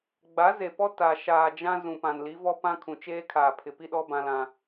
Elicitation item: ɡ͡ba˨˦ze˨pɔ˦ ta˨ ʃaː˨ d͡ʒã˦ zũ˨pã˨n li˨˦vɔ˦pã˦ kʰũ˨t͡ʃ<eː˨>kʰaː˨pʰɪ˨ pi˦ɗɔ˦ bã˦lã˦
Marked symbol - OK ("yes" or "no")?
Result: no